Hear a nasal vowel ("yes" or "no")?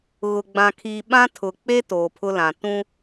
yes